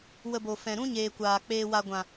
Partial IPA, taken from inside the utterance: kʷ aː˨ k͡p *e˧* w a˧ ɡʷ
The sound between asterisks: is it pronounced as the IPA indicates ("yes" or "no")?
no